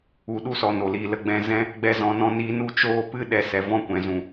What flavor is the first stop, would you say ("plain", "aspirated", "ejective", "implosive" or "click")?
implosive